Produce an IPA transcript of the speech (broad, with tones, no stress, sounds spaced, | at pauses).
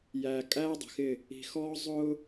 j æː˨ kʼ æː˦ dˤ ə̤˨ x ɪ˦˨ | i̤˨ x ɔː˦ zˤ ʊː˦